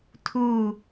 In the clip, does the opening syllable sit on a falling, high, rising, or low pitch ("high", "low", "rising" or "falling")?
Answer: falling